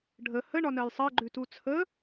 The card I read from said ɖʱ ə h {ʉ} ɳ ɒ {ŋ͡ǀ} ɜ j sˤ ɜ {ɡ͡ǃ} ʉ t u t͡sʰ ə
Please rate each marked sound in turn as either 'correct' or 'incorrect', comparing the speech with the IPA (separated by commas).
incorrect, incorrect, correct